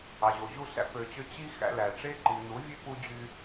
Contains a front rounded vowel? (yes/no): yes